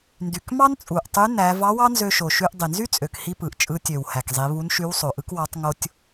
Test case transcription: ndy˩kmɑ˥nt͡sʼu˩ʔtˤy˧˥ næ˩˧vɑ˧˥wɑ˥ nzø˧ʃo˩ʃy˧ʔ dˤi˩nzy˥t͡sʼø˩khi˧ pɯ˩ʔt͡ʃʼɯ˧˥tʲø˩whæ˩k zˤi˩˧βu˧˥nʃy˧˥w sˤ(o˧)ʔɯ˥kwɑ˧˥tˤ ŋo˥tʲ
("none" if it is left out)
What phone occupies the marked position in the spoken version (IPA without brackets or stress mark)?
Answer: o˩